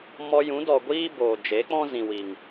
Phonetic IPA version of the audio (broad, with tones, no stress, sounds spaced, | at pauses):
m ɔ˧ j ũ˨˦ d ɔ˨ ɡʷ iː˦ b oː˨ d͡ʒ e˨˦ k͡p ɔ̃˦ z ĩ˨ w i˨ ŋ